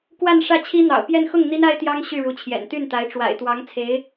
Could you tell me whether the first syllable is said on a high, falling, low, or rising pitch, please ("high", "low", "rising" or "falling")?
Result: falling